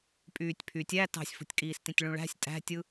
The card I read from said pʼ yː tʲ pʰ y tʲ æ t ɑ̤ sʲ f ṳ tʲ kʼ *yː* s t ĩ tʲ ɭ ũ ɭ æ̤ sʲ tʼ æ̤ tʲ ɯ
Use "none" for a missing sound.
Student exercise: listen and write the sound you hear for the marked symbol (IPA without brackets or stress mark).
iː